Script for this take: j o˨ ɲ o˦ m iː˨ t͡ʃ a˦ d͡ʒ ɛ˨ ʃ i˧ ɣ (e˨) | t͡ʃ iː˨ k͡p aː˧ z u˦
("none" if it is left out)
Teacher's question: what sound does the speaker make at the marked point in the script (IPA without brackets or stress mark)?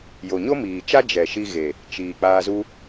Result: e˨